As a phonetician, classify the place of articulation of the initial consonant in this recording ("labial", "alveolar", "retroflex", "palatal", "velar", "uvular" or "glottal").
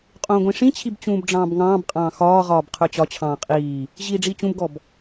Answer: uvular